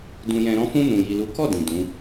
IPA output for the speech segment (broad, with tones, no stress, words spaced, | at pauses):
dũ˧jɛ̃˧ ɾɔ̃˧fũ˧ nũ˨ji˨lu˨˦kɔ˦˨ dĩ˨ dũ˨˦